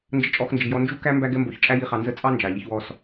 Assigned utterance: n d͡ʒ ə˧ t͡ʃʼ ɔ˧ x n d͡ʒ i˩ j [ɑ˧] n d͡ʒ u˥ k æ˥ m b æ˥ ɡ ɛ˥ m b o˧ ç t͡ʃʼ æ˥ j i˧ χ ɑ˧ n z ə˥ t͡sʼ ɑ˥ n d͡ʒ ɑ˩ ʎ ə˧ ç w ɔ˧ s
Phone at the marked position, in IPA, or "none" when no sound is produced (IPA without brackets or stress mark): ɔ˧